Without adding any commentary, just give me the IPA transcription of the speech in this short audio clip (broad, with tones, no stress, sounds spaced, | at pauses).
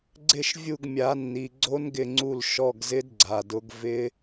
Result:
ɡ͡ǀ ɪ˦˨ ʃ vʲ u˦˨ ɡ mʲ a˨˦ nː i˨ ɡ͡ǀ o˦˥ n ɡ ɪ˦˨ ŋ͡ǀ u˦˨ l ʃ ɔ˧˥˧ ɡ z ɪ˦˥ d ɡ͡ǀ a˨ d ʊ˨˦ ɡ v ɪ˦˥